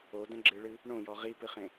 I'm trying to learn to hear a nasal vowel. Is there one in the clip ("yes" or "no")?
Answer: yes